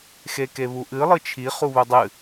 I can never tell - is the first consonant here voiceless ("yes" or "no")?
yes